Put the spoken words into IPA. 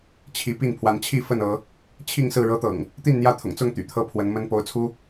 t͡ɕʰ i˨˦ p i˥˨ n pʰ w a˨˦ n t͡ɕʰ i˥˨ f ə˥˨ n ɤ˨˦ | t͡ɕʰ i˥˨ ŋ s ɹ̩˥˨ ɻ ɤ˦ t̪ ɤ̰˨˩ ŋ | t̪ i˥˨ n n̪ j ä˥˨ t̪ʰ ʊ̰˨˩ ŋ t͡s ʊ˥˨ ŋ t̪ y̰˨˩ t̪ʰ ɤ˥˨ pʰ w ə˨˦ n m ə˦ n p o˨˦ ʊ̯ t͡sʰ u˦

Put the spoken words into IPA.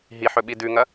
ɦ i ħ ɵ ɓ i d ʉ ŋ ɐ

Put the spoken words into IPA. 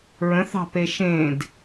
ɹ ə̃ θ ɑ̤ p e ʃ ẽ d

